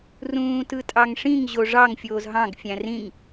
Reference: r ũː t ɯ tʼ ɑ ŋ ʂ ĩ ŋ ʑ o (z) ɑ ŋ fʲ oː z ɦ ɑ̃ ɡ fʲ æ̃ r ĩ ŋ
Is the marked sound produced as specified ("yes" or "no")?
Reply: no